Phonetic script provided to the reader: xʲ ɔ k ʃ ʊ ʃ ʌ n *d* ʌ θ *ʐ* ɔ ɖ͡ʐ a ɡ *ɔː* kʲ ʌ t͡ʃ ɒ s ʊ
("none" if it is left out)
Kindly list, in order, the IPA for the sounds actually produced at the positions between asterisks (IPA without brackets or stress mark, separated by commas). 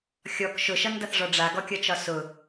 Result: d, ʐ, ɔ